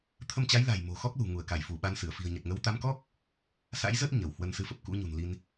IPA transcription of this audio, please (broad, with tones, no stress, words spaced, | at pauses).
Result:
t̪ʰə˧mt͡ɕa˨˦jla̤˨˩j mo̤˨˩ xɔ˦˥k̚lṳ˨˩ ŋu˧˩ə̯ka˧˩jfu˧˩ ɓa˧nsɨ˧˩ə̯ fi̤˨˩ə̯ɲə˨˩t̚ŋə˨˦w t̪a˨˦mkɔ˦˥k̚ | sa̰˧˥jzə˦˥t̚ ɲə˧˩whwə˧n sɨ˨˦fə˨˩p̚ kṵ˧˥ɲṳ˨˩nli˧n